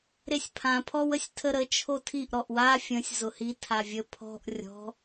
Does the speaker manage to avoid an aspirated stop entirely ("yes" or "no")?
no